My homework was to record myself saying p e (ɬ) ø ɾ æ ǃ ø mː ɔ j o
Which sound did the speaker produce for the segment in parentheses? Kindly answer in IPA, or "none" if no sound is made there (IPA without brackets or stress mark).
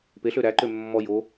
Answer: ɬ